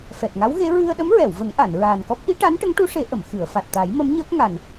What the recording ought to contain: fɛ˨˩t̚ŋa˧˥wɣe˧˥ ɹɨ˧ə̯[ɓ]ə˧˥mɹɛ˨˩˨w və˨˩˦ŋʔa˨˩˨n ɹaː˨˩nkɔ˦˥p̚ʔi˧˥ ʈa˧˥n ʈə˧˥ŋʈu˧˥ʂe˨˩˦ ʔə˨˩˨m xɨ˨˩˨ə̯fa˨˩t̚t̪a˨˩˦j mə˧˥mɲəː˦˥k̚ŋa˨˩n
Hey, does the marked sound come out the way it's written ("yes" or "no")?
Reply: no